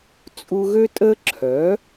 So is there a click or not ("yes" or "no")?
yes